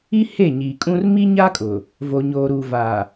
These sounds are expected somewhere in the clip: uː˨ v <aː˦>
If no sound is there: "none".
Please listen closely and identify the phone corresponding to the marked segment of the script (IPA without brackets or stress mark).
aː˨